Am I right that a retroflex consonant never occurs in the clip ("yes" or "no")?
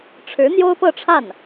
no